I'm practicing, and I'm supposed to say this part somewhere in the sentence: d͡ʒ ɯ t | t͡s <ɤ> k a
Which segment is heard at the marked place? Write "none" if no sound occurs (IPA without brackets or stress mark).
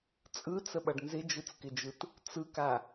ɯ